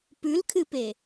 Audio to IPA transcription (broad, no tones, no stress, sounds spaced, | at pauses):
p ʉ l kʰ ɨ p e